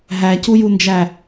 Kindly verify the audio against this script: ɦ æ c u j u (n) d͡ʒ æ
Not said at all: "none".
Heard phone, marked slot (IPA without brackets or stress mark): n